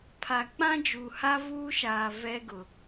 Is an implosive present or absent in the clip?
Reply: absent